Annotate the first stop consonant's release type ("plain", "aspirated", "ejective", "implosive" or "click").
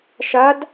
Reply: plain